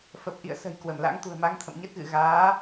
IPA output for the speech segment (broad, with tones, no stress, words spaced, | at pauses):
fə˨˩p̚ʔḭ˧˨ə̯ sə̤˨˩j kwə˧˩mla̰˧˥ŋt̪ṳ˨˩ə̯ma˧ŋ t̪ʰə̰˧˨mɲə˦˥t̚ɣɨ̰˧˨ ɣaː˨˦